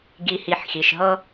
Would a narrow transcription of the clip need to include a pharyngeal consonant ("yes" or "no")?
yes